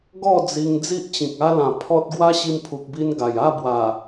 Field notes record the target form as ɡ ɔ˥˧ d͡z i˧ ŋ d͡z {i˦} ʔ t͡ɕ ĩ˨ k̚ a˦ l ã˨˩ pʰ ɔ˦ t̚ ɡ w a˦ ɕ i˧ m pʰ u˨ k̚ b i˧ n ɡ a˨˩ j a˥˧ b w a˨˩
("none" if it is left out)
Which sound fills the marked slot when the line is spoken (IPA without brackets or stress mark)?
i˦